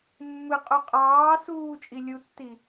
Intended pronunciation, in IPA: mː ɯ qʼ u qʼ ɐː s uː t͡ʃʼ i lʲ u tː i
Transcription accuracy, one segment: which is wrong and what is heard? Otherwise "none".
ɐː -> ɑː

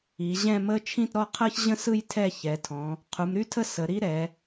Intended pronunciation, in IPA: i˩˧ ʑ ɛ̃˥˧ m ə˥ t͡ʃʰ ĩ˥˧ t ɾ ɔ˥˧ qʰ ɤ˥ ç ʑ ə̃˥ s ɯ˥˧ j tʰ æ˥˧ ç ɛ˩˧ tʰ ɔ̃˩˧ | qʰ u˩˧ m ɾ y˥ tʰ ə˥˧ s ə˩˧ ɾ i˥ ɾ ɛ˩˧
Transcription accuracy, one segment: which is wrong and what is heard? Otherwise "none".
æ˥˧ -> ɛ˥˧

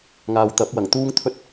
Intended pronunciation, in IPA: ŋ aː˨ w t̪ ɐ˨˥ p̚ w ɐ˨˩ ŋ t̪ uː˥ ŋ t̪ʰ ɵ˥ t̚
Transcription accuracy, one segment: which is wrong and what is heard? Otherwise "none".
none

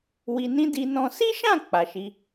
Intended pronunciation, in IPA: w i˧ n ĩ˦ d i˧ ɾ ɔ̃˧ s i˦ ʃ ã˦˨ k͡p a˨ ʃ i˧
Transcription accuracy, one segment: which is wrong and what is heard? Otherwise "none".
ɾ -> n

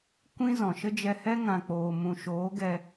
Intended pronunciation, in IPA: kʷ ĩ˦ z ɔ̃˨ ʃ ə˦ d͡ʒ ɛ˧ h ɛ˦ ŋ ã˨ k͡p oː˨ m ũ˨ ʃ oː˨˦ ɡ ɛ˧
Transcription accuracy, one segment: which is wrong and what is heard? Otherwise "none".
none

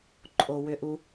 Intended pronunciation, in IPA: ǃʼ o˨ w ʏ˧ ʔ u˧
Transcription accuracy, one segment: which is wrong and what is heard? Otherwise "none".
none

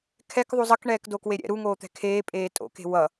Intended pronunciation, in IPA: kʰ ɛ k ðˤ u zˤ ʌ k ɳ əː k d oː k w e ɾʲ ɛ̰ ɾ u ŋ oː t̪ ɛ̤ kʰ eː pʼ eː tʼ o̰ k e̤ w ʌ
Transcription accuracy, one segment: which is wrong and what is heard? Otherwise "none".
əː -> ɛː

